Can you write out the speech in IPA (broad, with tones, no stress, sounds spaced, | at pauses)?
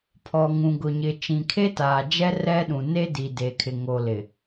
pʰ ɔ˨ ŋ ũ˨ ɡ ʊ˨ ɲ ɪ˨ t͡ʃ ĩ˨ kʰ e˦ t aː˨ d͡ʒ ɛ˦ r ɛ˦ ɗ ũ˨ n e˦ d i˨ d e˨ kʰ ɪ˨ ŋ o˨ l ɪ˨